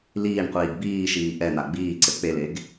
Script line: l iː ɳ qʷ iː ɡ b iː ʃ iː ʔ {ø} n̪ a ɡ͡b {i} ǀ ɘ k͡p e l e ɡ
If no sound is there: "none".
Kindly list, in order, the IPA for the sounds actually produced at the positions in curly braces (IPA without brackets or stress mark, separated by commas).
ɛ, iː